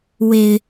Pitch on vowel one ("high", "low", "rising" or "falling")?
low